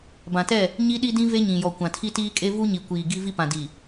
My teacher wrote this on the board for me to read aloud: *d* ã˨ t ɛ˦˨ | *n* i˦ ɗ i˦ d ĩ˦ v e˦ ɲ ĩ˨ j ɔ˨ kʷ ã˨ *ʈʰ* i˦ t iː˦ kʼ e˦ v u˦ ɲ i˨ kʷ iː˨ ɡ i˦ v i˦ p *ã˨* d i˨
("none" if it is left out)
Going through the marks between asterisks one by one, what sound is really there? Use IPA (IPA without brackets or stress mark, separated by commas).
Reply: b, ɲ, tʰ, ã˨